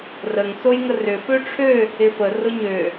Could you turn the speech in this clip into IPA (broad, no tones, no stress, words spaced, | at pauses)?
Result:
rəŋ sojŋərʏ føʈ͡ʂʰø | ɪfə rʊɲø